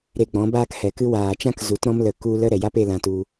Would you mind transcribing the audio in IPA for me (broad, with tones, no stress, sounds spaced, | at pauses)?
ɾ e˨ ɡ͡b ɔ̃˨˦ b aː˦ k h ɛ˨ k ɨ˦ w aː˨ t͡ʃ ã˦ k z u˨˦ t ɾ ɔ̃˦ m l ə˨ k u˧ l ə˦ ɾ ɛ˨ j a˦ p e˧ l ã˧ t u˧